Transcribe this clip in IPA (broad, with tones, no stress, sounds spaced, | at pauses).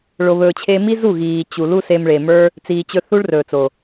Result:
ɭ o˨ β ɵː˨ t͡ɕʰ e˧ m i˦ z u˦˨ ɣ iː˨ t͡ɕ u˨ l u˦ s e˧ m ɭ e˨ m ə˞˦ | t͡s iː˨ t͡ɕ ɵ˧ θ u˦ ɭ r ɵː˨ t͡s o˨